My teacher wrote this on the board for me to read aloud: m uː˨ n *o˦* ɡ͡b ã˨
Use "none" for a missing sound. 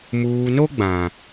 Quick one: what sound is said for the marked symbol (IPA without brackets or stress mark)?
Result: o˦